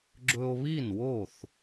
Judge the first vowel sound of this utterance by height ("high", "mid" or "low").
mid